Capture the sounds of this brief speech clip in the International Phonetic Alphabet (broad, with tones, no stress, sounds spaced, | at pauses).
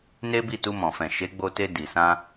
n e˦ b i˦˨ t u˧ m ɔ̃˨ f ɛ̃˨ ʃ e˨˦ ɡ͡b o˧ t e˧ d i˨ s ã˧